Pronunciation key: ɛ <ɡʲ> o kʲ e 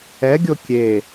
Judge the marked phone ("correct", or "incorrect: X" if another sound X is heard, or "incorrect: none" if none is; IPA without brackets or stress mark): correct